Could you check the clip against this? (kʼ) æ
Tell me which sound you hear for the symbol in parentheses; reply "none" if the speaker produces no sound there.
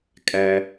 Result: kʼ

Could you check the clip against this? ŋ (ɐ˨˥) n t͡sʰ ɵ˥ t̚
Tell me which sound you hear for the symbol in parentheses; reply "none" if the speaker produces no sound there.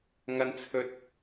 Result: ɐ˥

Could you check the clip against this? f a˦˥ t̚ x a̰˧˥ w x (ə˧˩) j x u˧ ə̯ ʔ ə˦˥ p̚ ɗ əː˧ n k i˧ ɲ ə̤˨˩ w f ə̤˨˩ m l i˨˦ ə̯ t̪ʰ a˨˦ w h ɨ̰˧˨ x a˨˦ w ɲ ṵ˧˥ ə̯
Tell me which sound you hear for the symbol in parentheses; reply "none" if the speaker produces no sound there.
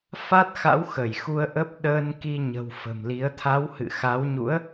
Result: ə˧˩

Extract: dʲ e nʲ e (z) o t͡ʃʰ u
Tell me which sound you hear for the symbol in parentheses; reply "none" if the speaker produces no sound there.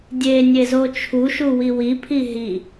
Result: z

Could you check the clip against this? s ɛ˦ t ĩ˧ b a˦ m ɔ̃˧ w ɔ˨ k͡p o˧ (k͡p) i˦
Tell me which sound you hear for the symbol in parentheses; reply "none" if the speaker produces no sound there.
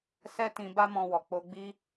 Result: ɡ͡b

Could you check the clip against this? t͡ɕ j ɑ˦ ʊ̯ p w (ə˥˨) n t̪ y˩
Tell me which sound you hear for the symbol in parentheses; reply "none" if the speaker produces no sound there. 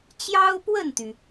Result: ə˥˨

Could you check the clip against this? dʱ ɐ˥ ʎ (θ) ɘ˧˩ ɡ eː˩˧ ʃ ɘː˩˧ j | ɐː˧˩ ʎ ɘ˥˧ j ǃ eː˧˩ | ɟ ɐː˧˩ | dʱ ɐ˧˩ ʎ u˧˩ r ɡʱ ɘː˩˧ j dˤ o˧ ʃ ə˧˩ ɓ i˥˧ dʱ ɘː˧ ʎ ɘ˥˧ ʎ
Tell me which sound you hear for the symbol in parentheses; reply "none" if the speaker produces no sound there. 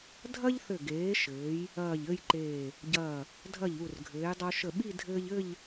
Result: θ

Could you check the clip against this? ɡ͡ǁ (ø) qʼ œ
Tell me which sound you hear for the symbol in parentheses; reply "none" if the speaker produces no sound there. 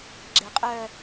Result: e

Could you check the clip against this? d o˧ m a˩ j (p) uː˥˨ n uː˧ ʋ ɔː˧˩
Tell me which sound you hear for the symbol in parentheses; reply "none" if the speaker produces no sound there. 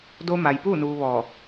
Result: p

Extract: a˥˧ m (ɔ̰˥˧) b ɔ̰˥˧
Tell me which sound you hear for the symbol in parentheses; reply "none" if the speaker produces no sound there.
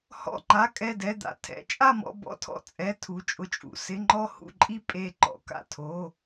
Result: ɔ̰˥˧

